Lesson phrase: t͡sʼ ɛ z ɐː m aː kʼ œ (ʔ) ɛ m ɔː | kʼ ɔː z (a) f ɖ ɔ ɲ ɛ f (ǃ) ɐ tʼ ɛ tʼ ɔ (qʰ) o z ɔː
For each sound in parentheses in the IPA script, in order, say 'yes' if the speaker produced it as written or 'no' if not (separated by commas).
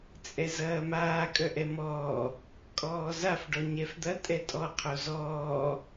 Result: yes, yes, no, yes